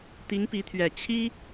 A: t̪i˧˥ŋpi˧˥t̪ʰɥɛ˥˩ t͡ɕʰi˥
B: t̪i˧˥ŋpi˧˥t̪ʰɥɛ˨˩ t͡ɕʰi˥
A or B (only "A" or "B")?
B